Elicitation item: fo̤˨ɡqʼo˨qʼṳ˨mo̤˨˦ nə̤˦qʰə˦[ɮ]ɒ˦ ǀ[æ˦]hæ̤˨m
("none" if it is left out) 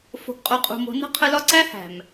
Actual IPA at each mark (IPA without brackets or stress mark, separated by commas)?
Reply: l, æ˦